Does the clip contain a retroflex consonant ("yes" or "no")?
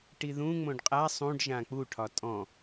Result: yes